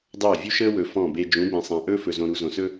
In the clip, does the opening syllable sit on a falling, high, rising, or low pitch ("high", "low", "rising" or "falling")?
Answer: falling